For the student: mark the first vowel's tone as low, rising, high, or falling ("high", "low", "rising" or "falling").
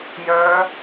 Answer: rising